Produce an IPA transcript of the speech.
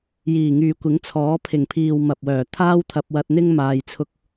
j iː˨˩ ŋ yː˨ kʷ ɪ˨˥ ŋ t͡sʰ ɔː˨˥ pʰ ɪ˨˩ ŋ pʰ iː˨ w m ɐ˨ p̚ w œː˨˩ t̪ʰ aː˥ w t̪ʰ ɐ˧ p̚ w ɐ˧ t̚ n̪ ɪ˥ ŋ m aː˧ j t͡sʰ ʊ˥ k̚

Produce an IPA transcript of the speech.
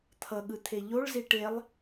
t̪ʰ ʌ ɠ ɯ t̪ʰ e ʎ o ɭ z i ʈ e lˠ

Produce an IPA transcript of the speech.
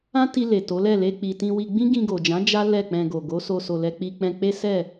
ã˦ t i˧ l e˨ t o˨˦ l ɛ˦˨ l e˧ k͡p i˨ t ĩ˧ w i˧ ɡ͡b ĩ˦ ɡ ĩ˧ ɡ o˨ d͡ʒ ã˨˦ d͡ʒ a˦ l ɛ˦˨ k͡p ɛ̃˧ ɡ o˨ ɡ o˨˦ s o˧ s o˨ l ɛ˧ k͡p i˧ k͡p ɛ̃˧ k͡p e˦ s ɛ˦˨

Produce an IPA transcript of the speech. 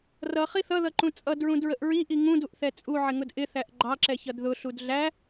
r ʌ χ i θ ʌ ð ʌ ǃ ũ t͡sʼ ʌ d ɹ ũ d ɹ ə ʔ ɹ i ʔ i ŋ ũ d u ʔ θ ɛ t͡sʼ u ʕ ɪ ŋ ʊ d ʔ ɪ θ æ ʔ ɡ͡ǃ ɑ ǁ ɛ ç ʌ d ð ʊ ɬ u d ɮ æ

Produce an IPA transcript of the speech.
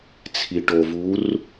t͡sʰ i˨ ʈ o˨ v u˨˦ r

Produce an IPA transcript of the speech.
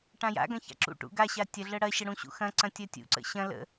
ʈ ã j a̰ ɡ ɐ̃ ç a̰ ǁ ṵ ʈ ṵ ɡ a ɕ a tʲ ɐ ɮ ə ɽ ɐ ɕ ə ɽ ũ ɕ ṵ x ɐ̃ ǀ ɐ̃ tʲ ɐ tʲ ṵ ǀ ə̰ ɕ ɐ̃ l ə̰

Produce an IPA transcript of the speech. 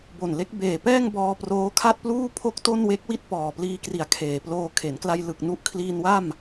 b o˨˩ n l e˦˥ k̚ b eː˨˩ p ɛː˥˩ ŋ b ɔː˧ p r oː˦˥ kʰ a˥˩ t̚ p l uː˥˩ pʰ o˥˩ k̚ t o˥˩ n w e˦˥ k̚ w i˥˩ t̚ p ɔː˨˩ p l iː˧ k r i˨˩ a̯ kʰ eː˨˩ p l oː˧ kʰ e˩˦ n k l a˧ j l ɯ˨˩ k̚ n u˦˥ ʔ kʰ l iː˧ n w a˥˩ m

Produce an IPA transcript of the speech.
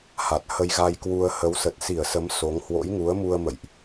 h a˨˩ t̚ h ə˧ j ɣ a˧ j k w u˧ ə̯ h ə˨˦ w s ə˨˩ t̚ s i˧˩ ə̯ s ə˨˦ m s o˨˦ ŋ h w o̰˧˥ j ŋ u˨˦ ə̯ m u˧ ə̯ m ə̰˧˨ j ʔ

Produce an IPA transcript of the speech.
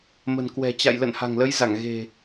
m ə̤˨˩ n k w ɛ̤˨˩ t͡ɕ a̰˧˨ j l ə̰˧˨ n h a̤˨˩ ŋ l ə˨˦ j z a˧˩ ŋ ɣ e̤˨˩

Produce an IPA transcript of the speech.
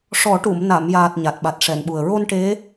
ʂ ɔ˨˩˦ ʈ u˨˩˨ m n a˨˩˨ m j aː˨˩ t̚ ɲ a˨˩ t̚ ɓ a˨˩ t̚ ʂ ɛ˨˩˨ n ɓ u˨˩ ə̯ ɹ o˧ n ʈ e˧˥

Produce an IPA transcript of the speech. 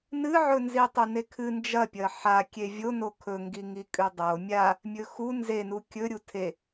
n ɨ ʕ ɵ n z i tˤ u n e kʰ ɨ n d͡ʒ ɐ pʲ ɐ ħ a kʲ e vʲ o n o kʰ ɵ ŋ ɡ i ŋ i kʼ ʉ dˤ o mʲ a | mʲ ɵ x u n z e n u kʲ ɵ ɾʲ u tʰ e

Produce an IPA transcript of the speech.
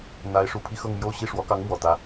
n̪ a˧˥ ɪ̯ ʂ u˨˩ pʰ i˥˧ x ɤ˥˧ ŋ m j o˥˧ ʊ̯ ɕ i˥˩ ʂ w ɔ˧˥ k ɑ˧˥ ŋ m w ɔ˨˩ t̪ ä˧˥

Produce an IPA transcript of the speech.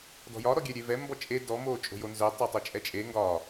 d ɔ̤ j ɒ ɾ ɔ ɡʲ ɛ ɾʲ e v ɛ m b ɔ t͡ʃʼ e d ɔ m oː t͡ʃʼ o̤ j o n z œ tˤ œ tˤ o t͡ʃʼ ɛ t͡ʃʼ e ŋ ɡ ɒ

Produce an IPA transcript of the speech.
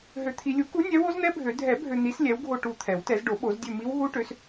ɦ ø˨ t̪ʰ i˨ lʲ u˨˥ k u˨˥ nʲ ɛ˨˥ w o˦˥ z n̪ ɛ˦˥ bʱ ø˨˩˦ dʱ ɛ˨˩˦ bʱ ø˨ n̪ i˨˥ s lʲ ɛ˨˥ w ɡʱ o˦˨ ʈ u˦˨ t̪ʰ ɛ˨˩˦ w t ɛ˨˩˦ z ɖ o˨˩˦ ɓ o˨˩˦ z dʲ ø˦˨ m i˦˥ w ɦ u˦˥ ʈ ø˨˥ s

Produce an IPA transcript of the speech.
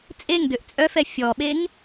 t͡sʼ e ŋ d ø ʔ t͡sʼ œ f ɛ fʲ ɔ ɓ e ŋ

